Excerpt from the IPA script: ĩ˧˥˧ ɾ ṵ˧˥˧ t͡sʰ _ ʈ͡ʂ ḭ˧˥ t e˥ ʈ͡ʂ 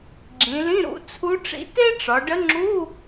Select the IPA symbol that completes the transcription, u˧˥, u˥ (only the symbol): u˧˥